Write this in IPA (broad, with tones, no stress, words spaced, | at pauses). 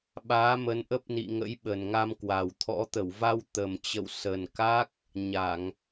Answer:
ɓaː˨˦ mə˨˦nʔə˦˥p̚nḭ˧˨ŋə̰˧˥j ɓə˨˩nŋa˧mkwa˨˩wt̪ʰɔ̰˧˥ t̪ə˧˩wva˧w t̪ə˨˩mt͡ɕə̰˧˨w sə˨˩nka˦˥k̚ | ɲa˧˩˨ŋ